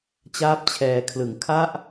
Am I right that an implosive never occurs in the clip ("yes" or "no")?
yes